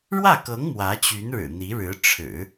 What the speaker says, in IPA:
ɻ w ä˥˩ k ɤ˧˥ ŋ m w ä˧˥ t͡ɕ y˧˥ n ɻ ɻ̩˨˩ n̪ i˧˥ ɻ ɻ̩˧˥ ʈ͡ʂʰ ɻ̩˨˩˦

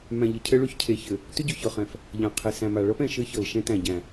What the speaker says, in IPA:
m æ̃˨ ʎ ɘ˨ cʰ ɘ˦ ɭ ʏ˦ ç cʰ e˨˦ ç ɘ˨ | t ʏ˦ ɟ ʏ˨ ç ɤ˨ χ ɛ̃˨ f | ʎ ã˨ qʰ e˨ s æ̃˨ m a˨ ɭ ɤ˦ p ɛ̃˨ ʃ ɘ˦ ç ɤ˨ l ʃ ɛ̃˦ t æ̃˨ ɟ æ̃˨

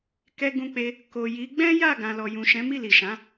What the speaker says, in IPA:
k ɛ˧ ɡ ũ˧ k͡p e˧ | k o˨ j i˨˦ ɡ͡b ɛ̃˦ j a˦˨ ɡ ã˨ l ɔ˨ j ũ˨ ʃ ɛ̃˨˦ m i˦˨ l i˨ ʃ ã˨˦

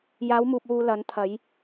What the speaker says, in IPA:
j aː˨˧ w m uː˨ p̚ w uː˨ l ɐ˨˧ n t̪ʰ ɐ˨˧ j

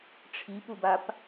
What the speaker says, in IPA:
ʈ͡ʂʰ i p u b a p

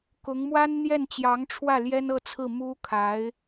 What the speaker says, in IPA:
k ʊ˧˥ ŋ m w a˥ n n̪ j ɛ˥˩ n t͡ɕ j ɑ˧˥ ŋ ʈ͡ʂʰ w ä˥˩ l j ɛ˥ n ɤ˥˧ t͡sʰ ɹ̩˥˩ m u˥ kʰ a˧˥ ɪ̯

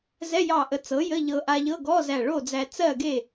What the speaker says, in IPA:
z ɛ˧˥˧ j ɑ˧˩ ʔ ə˩˥ t͡s ɤ˩˥ j ə˧˥˧ ʎ ɤ˧ ʔ a˧ ʎ ɤ˧˥˧ ɡ ɔ˧˥˧ z æ˧˩ ɭ o˥˨ d͡z æ˧ t͡s ɜ˥˨ ɡ e˥˨

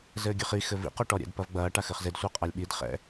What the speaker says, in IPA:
z ɘː ɡʲ ɘ χ i x ɘ v ḭ q o ʈ ɔ ɾʲ ɛ̰ d p ɐ v ɡ͡b ɐː ʈ a x ɘ χ z e d sʷ e qʼ a lʲ ɓ i d χ ɛ̰

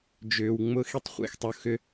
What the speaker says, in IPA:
d͡ʒ ʏː˩ w ŋ͡m ʊ˧ x i˧ tˤ χʷ ḛ˩ x tˤ ʊ˩˥ x ʏ˩˥

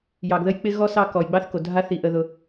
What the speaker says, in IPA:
j ɑ˩ ɡ ð ə˦ j k͡p ɪ˦ ɣ ɔ˥ s ɑ˦ k ɔ˩ j ɡ͡b ɑ˥ θ k o˩ dʱ a˥ θ i˨ ʔ ə˨ ð ʊ˨

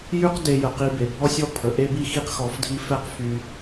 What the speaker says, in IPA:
j y˥ q d e˧ j ə˩ q i˧ b e˩ bʱ ɔ˥ sʲ ɔ˥ pʰ ə˩ ʔ e˥ b i˥ x i˥ q x ɔ˧ f dʱ i˥ f ɛ˥ q f y˧

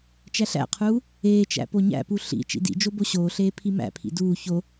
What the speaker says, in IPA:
t͡ʃ æ ɬ æ̰ qʰ uː | eː t͡ʃ æ̰ p o ɲ æ̰ p u ɬ ḭ t͡ʃ ḭ d ḭ d͡ʒ o b o ɕ oː ɬ eː pʰ i m æ̰ pʰ ḭ d uː ç o

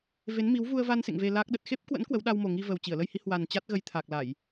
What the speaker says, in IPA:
v e˨˦ n m i˨˦ w v u˧ ə̯ v a˧ n s ḛ˧˨ ŋ v e˧ l a˦˥ k̚ ɗ ə˨˩ t̚ x e˦˥ p̚ k w ə̰˧˥ n k w ə˨˦ w ɗ a˧ w m o˨˩ ŋ i˧ v ə˨˩ w t͡ɕ i˧˩ ə̯ l ə˧ j h i˨˦ h w a˨˩ n t͡ɕ a˦˥ t̚ ɣ ə˨˦ j t̪ʰ a˨˩ k̚ l a˧˩˨ j

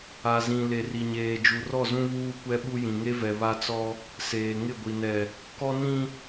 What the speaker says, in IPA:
a˨ z ĩ˨ l e˨ r i˨ ɲ eː˨ d͡ʒ u˨ r ɔ˦˨ z ũ˦ β uː˦ kʷ ɛ˦ ɓ u˦ j ĩ˨ ŋ e˦ v ɛ˨ β a˦ t͡s ɔ˦ | s eː˨ ŋ ɪ˦˨ ɡʷ i˨ n ɛ˨ | k ɔ˦ n ĩ˦

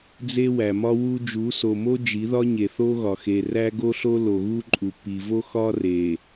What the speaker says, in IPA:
d͡z e˦ w æ˨ m ɒ˦ w u˦ d͡ʒ u˨˦ s o˨ m o˦ d͡ʒ i˨˦ ð ɒ˦ ɲ e˨ θ o˦ ɣ ɒ˨ x e˨ r æ˦ ɡ o˦ ɬ o˦ l o˨ ɣ u˦ ǃʼ u˨ p i˨ v o˦ x ɒ˦ r e˨

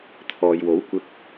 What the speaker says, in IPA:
t̪ʰ ɔː˨ j w o˨˥ w kʷ ɪ˧ k̚

